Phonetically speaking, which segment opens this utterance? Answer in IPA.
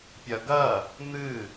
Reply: pʲ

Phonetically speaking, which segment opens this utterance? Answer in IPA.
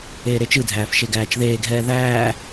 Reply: eː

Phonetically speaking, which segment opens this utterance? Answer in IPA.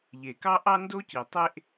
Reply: ʎ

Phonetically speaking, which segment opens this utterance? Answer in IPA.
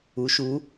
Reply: u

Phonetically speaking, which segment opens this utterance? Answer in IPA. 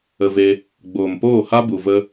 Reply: ə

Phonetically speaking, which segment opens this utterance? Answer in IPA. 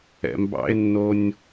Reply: ɛ̰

